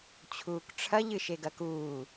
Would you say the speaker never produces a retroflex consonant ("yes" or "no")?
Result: no